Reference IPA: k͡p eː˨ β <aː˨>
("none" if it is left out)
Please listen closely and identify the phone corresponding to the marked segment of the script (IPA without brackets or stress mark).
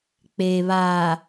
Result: aː˨